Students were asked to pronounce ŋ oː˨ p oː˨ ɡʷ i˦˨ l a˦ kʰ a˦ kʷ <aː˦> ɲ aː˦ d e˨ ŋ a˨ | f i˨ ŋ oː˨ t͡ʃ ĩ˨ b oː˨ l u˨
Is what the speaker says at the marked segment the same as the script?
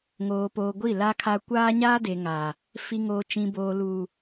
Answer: yes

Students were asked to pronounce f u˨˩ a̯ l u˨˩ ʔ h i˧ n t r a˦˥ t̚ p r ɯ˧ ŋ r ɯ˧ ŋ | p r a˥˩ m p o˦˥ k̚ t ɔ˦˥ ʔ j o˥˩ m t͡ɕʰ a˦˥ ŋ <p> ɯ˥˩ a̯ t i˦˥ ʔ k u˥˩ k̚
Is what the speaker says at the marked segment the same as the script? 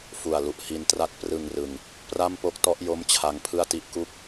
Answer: no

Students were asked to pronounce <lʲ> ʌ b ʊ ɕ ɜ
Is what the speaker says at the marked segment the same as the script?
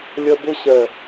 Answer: yes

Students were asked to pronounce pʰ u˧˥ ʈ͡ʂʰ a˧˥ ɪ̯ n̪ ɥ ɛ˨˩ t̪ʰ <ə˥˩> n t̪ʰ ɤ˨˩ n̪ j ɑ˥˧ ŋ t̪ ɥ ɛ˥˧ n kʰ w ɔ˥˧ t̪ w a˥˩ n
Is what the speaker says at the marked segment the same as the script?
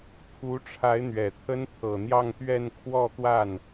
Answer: no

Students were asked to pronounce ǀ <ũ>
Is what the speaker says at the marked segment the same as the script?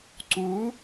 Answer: no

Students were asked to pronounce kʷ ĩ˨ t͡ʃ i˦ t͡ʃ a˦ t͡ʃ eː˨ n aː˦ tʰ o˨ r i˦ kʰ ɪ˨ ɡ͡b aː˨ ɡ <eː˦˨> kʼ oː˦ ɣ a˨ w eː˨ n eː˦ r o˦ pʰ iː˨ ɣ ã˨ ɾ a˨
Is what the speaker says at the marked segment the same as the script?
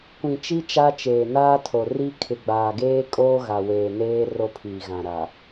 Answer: no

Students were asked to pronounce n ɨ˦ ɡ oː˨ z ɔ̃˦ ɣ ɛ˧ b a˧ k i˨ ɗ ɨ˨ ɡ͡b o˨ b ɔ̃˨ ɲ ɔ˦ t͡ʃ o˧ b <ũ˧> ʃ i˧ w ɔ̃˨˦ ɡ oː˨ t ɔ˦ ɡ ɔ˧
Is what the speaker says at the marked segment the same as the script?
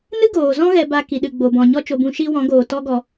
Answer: yes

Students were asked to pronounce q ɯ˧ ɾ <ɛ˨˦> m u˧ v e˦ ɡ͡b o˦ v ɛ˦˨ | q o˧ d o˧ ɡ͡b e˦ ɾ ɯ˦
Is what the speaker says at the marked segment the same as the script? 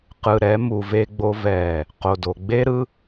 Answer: yes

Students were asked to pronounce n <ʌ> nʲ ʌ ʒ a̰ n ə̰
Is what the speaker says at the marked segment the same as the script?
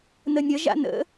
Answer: no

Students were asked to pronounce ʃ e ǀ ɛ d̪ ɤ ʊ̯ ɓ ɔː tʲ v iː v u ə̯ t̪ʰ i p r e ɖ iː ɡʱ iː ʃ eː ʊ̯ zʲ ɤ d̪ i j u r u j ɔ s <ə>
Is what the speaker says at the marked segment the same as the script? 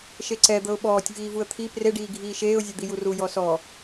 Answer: no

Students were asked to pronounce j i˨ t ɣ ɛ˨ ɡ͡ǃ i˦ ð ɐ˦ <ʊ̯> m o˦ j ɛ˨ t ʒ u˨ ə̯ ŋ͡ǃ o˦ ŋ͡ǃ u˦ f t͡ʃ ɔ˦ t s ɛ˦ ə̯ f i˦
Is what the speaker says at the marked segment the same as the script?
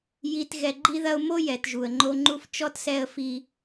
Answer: yes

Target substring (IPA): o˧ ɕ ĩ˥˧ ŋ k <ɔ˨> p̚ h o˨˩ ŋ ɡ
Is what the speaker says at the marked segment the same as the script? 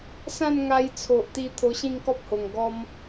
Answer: no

